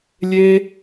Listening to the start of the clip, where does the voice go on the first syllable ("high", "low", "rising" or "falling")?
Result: high